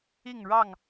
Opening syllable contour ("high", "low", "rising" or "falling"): falling